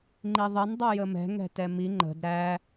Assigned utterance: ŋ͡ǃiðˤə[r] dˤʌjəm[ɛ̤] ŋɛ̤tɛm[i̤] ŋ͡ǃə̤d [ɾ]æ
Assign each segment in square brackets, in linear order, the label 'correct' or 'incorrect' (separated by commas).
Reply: incorrect, correct, incorrect, correct